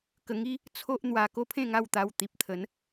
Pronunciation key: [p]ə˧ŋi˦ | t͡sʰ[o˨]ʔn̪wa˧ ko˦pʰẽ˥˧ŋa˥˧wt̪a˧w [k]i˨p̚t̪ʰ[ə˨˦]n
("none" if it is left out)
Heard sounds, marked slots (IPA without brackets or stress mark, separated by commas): k, o˦, t̪, ə˨˦